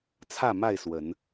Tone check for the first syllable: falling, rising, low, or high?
falling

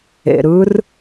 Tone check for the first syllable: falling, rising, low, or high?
low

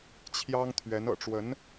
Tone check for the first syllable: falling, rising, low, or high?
high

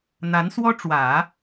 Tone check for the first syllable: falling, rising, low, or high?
rising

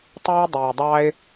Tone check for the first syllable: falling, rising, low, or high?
high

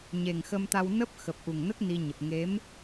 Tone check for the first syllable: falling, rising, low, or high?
low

